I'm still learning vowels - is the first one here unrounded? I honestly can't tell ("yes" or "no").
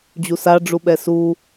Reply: no